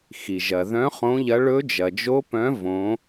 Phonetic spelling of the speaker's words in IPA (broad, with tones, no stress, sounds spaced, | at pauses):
x i˩ ʒ ɐ˩ ð œ̃˨˦ χ õ˨˦ ʎ ɐ˨˦ ɭ ɵ˨˦ d͡ʒ ɐ˩ d͡ʒ o˨˦ p œ̃˨˦ v õ˨˦